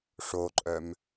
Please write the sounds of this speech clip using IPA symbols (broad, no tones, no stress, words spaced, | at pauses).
ʂoǃʼœm